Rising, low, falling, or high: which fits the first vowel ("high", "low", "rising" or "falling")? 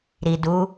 low